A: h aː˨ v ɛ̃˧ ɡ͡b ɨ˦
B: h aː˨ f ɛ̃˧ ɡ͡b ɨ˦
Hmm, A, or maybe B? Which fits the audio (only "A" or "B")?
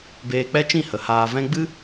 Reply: A